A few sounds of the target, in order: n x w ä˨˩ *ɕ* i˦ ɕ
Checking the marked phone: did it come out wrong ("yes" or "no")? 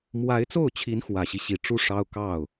no